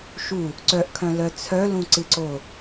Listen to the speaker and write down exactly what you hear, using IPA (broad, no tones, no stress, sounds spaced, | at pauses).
ʃ u | ǀ œ ʔ kʰ œ̃ l œ t͡sʰ œ l ũ ǀ ɨ ǀ o